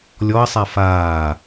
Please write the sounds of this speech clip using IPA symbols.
lʲɔɐ̯sˤa faː

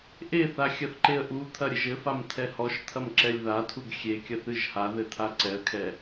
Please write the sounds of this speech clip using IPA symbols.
ʔeθa xʲɐθǃeə̯ʔut̪ʰɐ ɾʲɘʒɘfam t̪ʰɛhɔʃt̪ʰɐm ǁɛlʲðatʰuɡ xʲekʲɐθ ɨʒhaðɘ t̪ʰaǀɛə̯kʰɛ

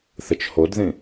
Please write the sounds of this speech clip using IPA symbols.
θət͡ʃhodðĩ

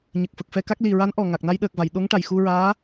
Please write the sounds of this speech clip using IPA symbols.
ɲə˨˩k̚fə˨˩k̚fɛ˧ka˦˥k̚ li˨˩ ɹa˧˥nʔɔ˨˩ŋa˨˩k̚ na˧jɗəː˨˩k̚va˨˩˨j ɗo˧˥ŋʈa˨˩j xu˧ɹaː˧˥

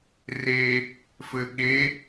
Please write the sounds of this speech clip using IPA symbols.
re | fɘɠe

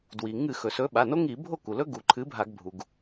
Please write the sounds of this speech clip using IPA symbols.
dwi˩ ŋɨ˧˩˧ xɵ˩sɵ˨˥ɓa˩˧˩ no˦˥ŋi˧˩˧bʱo˥˩ ku˩lɵ˦˥ ɡu˩ ǃʰɨ˨˥bʱa˧˩˧ɡ bʱu˩ɡ

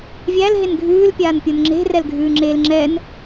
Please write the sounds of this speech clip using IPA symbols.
vʲæl ɦenɡʱʉːl pʲaːnpʲonŋ͡ǁe̤ rɛlɡʱʉːŋ͡ǁeːlŋ͡ǁɛn

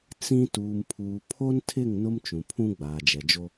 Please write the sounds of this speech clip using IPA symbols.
t͡sĩ˦ tuː˨mpʰuː˨ pʰo˦ntʰɪ˦˨ŋ nʊ˦mt͡ʃũ˨pʰũ˦ ɡ͡baː˨d͡ʒɛ˨d͡ʒo˦

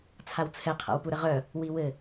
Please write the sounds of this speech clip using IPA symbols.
t͡sʰawt͡sʰɛ qʰa̰wpuɾəʁœ | wiwɘ

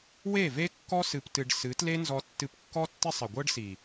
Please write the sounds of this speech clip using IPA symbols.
we˦˨ve˦kːɔ˦ sɨ˧ptɨ˧ɖ sɨ˨˦tle˦nzɔ˧ tːɨ˧pkːɔ˦tːɪ˦ sˤɪ˨ɡʷɤ˦ɖsi˨

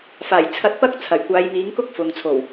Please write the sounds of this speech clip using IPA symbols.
faː˨˩jt͡sʰɐ˧t̚pɐ˥k̚ t͡sʰɐ˨˩jkʷaː˨˧j miː˨˥ŋkʊ˥k̚ fʊ˨ŋt͡sʰo˨˩w

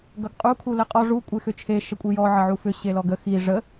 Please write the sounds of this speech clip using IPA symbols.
ɡʌɡqʼu kʰuləqʼɔ ʐu kʷʼexʏt͡ʃʰe ʃəkʷʼijɔ ʕəʕufʏ ɕelɔɡə xi ʐə

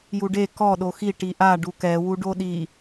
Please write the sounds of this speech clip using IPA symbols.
juɖe kɔ ɗoxi ʈiʔa ɖukɛ wuɖoɗi

